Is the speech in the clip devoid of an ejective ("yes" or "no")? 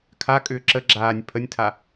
no